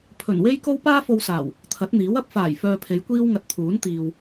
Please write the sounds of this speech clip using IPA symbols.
pʰ ɵ˨˩ n w e˥ j k o˥ w p aː˥ f o˧ w s aː˨˩ w | t̪ʰ ɐ˨˥ t̚ n̪ iː˨˥ w ɐ˨˥ p̚ f aː˨˩ j f œː˧ pʰ e˨˧ j kʷ iː˥ w ŋ ɐ˧ t̚ t̪ʰ uː˨˥ n t̪ iː˨ w

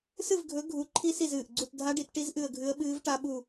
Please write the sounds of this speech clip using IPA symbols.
s ɨ˦˨ v ɡʱ ɵ˨˦ ɡʱ u˨˦ ǃʰ i˦˥ s i˦˨ z ɨː˨˩ ʔ ɡ͡ǀ u˦˨ t dʱ a˦˥ ɖ i˨˦ t ʈ i˦˥ z ʔ ɨ˦˨ ə̯ ɡʱ ɨ˦˥ ə̯ ɓ ɨː˦˥ v ʈ a˦˥ ɓ u˦˨

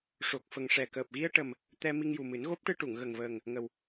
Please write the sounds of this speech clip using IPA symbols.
ʂ o˨˩ k̚ f ə˨˩ ŋ ʂ ɛ˨˩ k əː˨˩ p̚ ɣ i˧ ə̯ ʈ ə˨˩ m | t̪ ɛ˧ m i˧ ŋ j u˨˩ m ɨ˨˩˦ n ɣ o˦˥ p̚ ʈ ɨ˧ ʈ u˨˩˨ ŋ ɣ ə˨˩ ŋ v əː˨˩ ŋ | ŋ ə˨˩ w

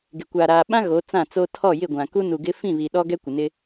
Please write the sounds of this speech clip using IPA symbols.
ɡ ɪ˨ kʷ aː˨ ɾ aː˨ ɓ ã˦ ɣ o˨˦ t͡s ã˦˨ t͡s o˦ tʰ ɔ˦˨ j ɪ˦˨ ɡʷ ã˨ k u˦ n u˨ ɡ ɪ˦ f ĩ˦˨ β i˨ ɗ ɔ˦ ɡ ɛ˦ kʷ ɪ˨ n ɪ˦

